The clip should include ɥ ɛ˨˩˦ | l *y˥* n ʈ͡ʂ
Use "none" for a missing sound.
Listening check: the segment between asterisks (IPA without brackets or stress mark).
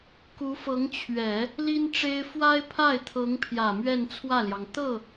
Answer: i˥